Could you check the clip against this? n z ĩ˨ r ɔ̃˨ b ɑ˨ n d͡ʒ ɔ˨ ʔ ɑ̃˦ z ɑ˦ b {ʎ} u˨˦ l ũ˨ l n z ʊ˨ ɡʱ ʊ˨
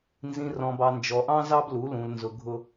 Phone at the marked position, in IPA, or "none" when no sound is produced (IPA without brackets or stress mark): l